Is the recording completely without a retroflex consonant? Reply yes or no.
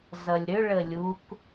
no